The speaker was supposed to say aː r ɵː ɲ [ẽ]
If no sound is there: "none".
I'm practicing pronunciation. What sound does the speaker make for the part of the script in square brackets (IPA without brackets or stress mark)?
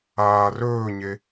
e